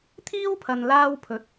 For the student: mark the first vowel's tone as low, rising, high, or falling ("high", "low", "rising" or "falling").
high